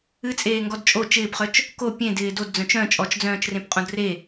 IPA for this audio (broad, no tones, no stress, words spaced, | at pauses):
ɨt͡sʼeː ŋɡɔdt͡ʃʼo t͡ʃɪːpχœt͡ʃ | ko pʲẽ dɪːdod d͡zœ̃t͡ʃœ̃ t͡ʃʼɔt͡ʃd͡zœ̃ːt͡ʃrẽp qʼõdre